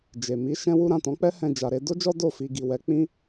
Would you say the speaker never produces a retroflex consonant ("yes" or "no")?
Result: yes